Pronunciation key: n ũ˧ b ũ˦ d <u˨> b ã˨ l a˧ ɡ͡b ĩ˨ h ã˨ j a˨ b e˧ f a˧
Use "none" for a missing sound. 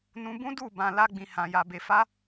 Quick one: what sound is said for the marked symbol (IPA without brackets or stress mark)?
u˦˨